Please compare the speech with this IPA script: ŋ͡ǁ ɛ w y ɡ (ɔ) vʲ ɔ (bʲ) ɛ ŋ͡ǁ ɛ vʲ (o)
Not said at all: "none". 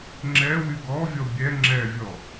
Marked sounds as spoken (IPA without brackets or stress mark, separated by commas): ɔ, bʲ, ɔ